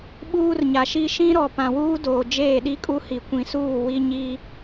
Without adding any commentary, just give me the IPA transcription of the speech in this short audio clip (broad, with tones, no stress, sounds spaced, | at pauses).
ɓ uː˦ r ɲ a˨ ʃ i˦ ʃ ĩ˦ ɾ ɔ˨ p ã˨ w uː˦ d oː˨ d͡ʒ eː˦˨ ɗ i˦ kʼ u˦ h i˨ kʷ ĩ˨ s uː˦˨ w i˦ ɲ i˦